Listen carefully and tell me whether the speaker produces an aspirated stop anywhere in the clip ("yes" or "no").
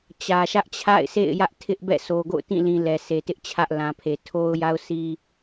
yes